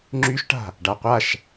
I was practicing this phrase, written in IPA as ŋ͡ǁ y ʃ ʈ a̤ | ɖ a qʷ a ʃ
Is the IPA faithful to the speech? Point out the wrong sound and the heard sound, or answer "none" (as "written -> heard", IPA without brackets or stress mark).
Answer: none